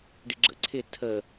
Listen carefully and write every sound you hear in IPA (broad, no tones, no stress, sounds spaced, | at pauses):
ɖ ḭ ɡ͡ǁ ə̰ ǀʰ ɪ tʰ ə